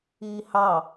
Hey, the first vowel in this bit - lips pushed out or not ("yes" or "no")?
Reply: no